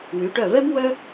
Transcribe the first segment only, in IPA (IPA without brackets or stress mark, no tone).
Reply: w